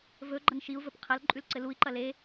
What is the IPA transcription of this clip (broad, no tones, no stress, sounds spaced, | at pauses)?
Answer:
v ɵ ɡ͡ǃ ɐ n ʃ i u̯ v ɵ p qʰ ɐ l ǃʼ ʉ l ǀ ɘ l u i̯ ǃ ɐ l e